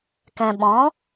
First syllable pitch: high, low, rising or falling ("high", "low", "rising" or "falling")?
low